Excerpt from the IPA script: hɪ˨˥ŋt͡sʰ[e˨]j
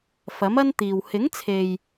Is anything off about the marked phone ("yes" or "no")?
no